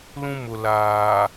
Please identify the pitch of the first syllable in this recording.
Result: high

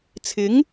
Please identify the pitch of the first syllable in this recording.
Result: rising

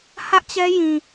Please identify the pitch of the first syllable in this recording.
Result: high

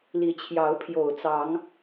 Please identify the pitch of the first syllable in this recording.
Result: rising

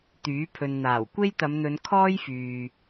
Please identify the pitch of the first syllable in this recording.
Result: rising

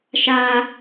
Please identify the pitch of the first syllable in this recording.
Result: high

